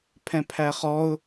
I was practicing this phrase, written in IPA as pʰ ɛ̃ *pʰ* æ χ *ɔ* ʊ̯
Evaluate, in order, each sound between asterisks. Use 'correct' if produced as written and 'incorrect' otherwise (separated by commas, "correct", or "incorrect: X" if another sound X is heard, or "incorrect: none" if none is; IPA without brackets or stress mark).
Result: correct, correct